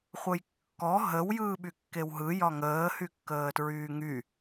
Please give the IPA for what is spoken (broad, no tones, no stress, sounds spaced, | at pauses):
χʷ ə j kː ɔ ɦ ə w j ɯː ɓ y kː e w ɦ ɯ j ɒ ŋ əː h y kː əː t ɹ yː ŋ y